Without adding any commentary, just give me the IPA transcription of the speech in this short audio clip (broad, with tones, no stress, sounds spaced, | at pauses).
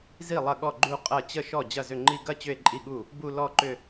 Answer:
z i˥˩ lˠ ɐ˥˩ ɠ ɔ˥˩ ɡ͡ǃ u˥˧ qʼ ɐ˥˩ t͡ɕ ə˥˩ ʃ ɔ˥˩ d͡ʑ ɐ˥˩ z ʏ˥˩ ŋ͡ǃ i˥˧ ɡ ɐ˥˧ t͡ɕ ʏ˥˧ e̯ ǃʼ i˥˩ ɠ u˥˩ | b u˥˧ l ɔ˥˧ ǃ ʏ˥˧